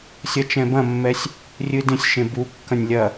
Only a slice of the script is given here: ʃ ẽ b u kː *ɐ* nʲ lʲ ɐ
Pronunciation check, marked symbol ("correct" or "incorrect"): incorrect